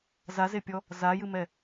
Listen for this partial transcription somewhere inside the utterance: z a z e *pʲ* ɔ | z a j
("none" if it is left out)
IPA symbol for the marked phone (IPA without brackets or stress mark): pʲ